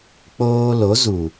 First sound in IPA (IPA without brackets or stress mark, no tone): k͡p